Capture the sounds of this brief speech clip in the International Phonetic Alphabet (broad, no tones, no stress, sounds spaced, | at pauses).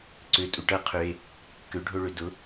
ǀ ø tʼ u ʈ ɐ qʰ ø e̯ | k ø ɖʱ o ɭ ø d ʊ